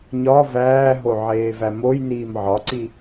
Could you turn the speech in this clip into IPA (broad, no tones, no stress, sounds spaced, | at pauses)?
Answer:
ɲ ɒ v æː ɦ o ʕ eː v æ m o j n iː m ʕ ɒ ǀ i